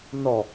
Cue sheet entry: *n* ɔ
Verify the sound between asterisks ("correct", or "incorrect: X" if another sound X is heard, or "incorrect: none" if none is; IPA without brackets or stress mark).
correct